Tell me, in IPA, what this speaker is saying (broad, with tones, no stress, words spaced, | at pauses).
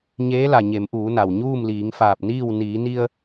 ɲeː˧˥la˩ ɲe˩˧mʔuː˩˧na˩w ɲuː˥˨mliː˩˧ŋfaː˧˩p̚niː˥˨w niː˩˧ni˧ə̯